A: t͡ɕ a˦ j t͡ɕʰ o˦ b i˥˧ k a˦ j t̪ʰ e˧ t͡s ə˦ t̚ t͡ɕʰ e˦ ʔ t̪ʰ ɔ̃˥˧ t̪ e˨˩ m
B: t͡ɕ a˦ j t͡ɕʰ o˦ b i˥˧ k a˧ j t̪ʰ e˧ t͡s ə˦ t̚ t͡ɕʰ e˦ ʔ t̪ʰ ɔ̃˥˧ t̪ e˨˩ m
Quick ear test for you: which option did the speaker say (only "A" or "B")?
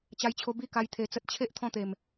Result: A